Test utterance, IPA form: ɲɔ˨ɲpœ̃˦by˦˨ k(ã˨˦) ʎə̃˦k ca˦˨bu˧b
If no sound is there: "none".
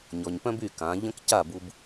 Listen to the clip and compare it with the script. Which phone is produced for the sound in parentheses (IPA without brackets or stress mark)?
ã˨˦